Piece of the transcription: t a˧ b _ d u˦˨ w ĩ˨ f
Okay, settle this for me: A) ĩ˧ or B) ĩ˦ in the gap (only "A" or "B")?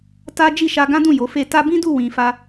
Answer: B